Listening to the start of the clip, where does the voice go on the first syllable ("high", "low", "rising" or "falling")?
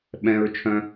high